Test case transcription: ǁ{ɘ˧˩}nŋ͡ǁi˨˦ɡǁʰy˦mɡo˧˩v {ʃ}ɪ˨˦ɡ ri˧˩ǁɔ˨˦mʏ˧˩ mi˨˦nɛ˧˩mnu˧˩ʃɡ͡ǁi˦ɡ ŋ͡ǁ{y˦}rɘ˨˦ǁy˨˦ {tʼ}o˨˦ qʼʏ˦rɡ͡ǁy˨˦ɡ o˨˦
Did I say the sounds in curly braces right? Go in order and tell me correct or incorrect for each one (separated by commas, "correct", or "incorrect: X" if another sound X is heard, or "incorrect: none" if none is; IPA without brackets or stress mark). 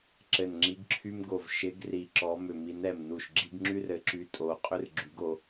correct, correct, correct, correct